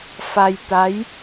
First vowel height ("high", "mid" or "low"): low